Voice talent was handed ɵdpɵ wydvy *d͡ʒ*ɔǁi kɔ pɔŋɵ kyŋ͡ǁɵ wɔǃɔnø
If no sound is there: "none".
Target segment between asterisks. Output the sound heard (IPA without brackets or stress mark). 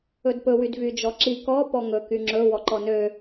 d͡ʒ